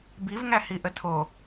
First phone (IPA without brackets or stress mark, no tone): b